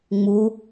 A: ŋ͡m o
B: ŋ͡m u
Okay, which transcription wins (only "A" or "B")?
B